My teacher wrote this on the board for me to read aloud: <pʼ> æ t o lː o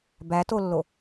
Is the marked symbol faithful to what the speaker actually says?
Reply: no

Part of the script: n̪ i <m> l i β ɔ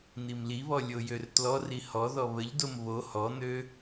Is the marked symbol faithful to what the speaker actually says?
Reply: yes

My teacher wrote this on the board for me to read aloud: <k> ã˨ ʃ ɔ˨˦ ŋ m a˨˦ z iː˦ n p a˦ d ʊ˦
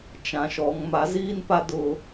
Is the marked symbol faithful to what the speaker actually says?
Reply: no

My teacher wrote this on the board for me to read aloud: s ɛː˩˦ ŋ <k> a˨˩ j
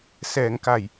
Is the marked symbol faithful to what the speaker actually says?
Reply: yes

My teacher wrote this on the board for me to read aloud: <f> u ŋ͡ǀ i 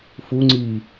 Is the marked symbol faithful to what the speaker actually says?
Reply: yes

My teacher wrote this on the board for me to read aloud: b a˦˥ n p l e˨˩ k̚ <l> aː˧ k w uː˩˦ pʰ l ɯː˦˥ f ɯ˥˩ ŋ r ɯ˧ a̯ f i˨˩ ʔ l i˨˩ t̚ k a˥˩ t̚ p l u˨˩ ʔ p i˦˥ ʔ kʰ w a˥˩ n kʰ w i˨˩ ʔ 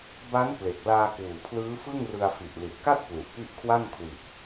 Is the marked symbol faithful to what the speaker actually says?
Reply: yes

